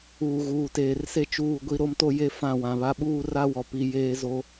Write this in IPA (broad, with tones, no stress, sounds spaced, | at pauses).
uː˨ ɣ uː˨ t eː˨ r s e˦ t͡ʃ uː˦˨ ɡʷ i˦ ɾ o˦ m t o˦ j e˦ f ã˦˨ w ã˨ β a˦ ɓ uː˦ r a˦ w ɔ˨ p i˨ j eː˦ z o˦